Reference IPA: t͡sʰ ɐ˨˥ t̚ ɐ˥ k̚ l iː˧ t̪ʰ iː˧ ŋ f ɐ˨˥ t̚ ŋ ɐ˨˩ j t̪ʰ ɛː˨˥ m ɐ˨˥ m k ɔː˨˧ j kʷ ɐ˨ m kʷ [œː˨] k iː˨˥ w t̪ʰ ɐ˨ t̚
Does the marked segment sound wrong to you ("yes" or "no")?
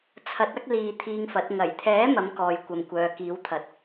no